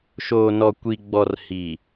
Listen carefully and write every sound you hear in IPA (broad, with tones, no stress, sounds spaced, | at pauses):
ʃ oː˨ n ɔ˨ kʷ i˨ ɡ͡b ɔ˨ r h i˨